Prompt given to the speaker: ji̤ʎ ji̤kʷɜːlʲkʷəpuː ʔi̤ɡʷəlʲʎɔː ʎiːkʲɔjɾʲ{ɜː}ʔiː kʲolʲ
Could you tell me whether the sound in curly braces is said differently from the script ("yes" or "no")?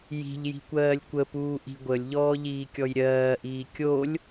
no